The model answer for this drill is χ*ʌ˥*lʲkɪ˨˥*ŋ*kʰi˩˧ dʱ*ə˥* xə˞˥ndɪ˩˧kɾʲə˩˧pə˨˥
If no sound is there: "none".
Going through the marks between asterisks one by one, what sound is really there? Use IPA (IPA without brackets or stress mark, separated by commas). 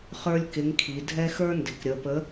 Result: ə˞˥, ŋ, ɛ˥